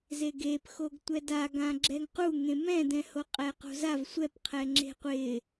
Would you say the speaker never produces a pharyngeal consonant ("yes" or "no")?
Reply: yes